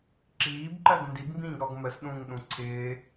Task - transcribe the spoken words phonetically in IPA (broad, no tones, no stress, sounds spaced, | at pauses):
ǁ iː b ǃ ɜ ɡ n d i b m b ĩː ɡ ɾ ɔ ɡ m ə s ɗ ũː ŋ ɗ ũ ǀʰ ɪː